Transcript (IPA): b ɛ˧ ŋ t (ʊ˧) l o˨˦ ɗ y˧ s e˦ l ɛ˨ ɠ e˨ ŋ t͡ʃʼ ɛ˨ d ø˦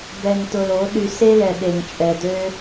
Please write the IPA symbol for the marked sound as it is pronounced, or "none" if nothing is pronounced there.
ʊ˧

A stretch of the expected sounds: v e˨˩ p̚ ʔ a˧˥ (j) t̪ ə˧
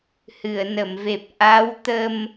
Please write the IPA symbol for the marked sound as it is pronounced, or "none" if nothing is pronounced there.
w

